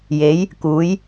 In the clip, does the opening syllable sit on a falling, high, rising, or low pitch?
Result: rising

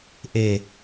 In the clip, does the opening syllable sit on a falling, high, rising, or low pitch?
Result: low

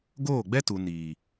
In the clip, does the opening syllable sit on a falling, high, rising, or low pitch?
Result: falling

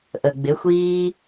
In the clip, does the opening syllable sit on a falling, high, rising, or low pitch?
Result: low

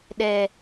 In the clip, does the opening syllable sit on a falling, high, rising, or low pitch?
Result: high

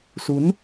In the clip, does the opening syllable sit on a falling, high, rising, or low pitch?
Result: rising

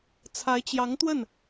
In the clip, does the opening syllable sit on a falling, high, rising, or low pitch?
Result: rising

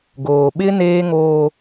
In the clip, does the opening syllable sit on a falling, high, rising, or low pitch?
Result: low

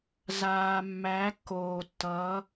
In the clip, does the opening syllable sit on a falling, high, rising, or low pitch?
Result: low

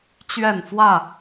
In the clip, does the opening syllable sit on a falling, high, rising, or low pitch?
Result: falling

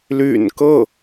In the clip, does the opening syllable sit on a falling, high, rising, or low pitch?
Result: low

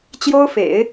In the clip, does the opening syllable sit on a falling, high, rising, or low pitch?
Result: high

